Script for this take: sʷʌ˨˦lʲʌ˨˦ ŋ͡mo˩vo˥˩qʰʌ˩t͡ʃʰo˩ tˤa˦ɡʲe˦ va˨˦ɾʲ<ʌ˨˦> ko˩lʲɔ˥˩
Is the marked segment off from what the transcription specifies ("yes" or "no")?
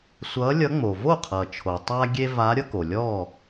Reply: yes